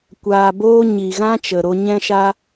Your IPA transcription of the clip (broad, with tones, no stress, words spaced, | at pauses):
kʷaː˨boː˧ ɲi˨ɣã˧t͡ʃə˨ ɾo˧ɲɛ̃˦ʃa˦